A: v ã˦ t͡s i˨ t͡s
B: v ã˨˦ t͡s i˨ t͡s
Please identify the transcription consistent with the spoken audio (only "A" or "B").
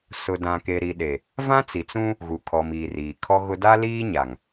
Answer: A